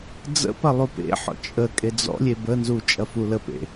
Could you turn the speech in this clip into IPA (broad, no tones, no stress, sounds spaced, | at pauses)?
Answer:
d͡z ə̰ p ɐ lˠ u p ḛ ħ ɔ̰ t͡ʃʼ ə kʼ e d͡z ɔ̰ lʲ e b ə n z u t͡ʃʼ ɐ f u l ə p ḛ